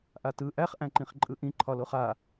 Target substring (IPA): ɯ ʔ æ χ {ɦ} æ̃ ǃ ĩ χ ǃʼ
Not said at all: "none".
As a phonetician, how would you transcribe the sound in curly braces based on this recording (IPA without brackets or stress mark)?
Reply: ʔ